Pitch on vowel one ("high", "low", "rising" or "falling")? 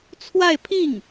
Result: falling